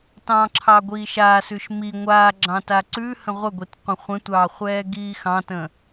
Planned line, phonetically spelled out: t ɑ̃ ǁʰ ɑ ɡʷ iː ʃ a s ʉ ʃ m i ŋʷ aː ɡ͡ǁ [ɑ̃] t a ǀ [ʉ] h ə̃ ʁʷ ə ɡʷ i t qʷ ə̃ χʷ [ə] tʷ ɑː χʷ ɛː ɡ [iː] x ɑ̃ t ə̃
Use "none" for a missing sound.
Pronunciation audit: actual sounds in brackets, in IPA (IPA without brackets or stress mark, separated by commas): ɑ̃, ʉ, ə̃, iː